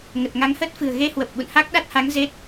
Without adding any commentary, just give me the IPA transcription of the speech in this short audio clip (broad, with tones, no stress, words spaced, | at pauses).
ŋə˨˩t̚ŋa˨˦ŋhəː˦˥t̚ fɨ̤˨˩ə̯ɣe˧hwə˨˩p̚ ɓṵ˧˨nha˦˥k̚ɗa˦˥t̚ha˨˦ŋ ze˦˥t̚